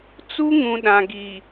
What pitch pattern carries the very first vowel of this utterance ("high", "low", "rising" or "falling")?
high